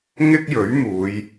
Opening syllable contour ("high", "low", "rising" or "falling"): high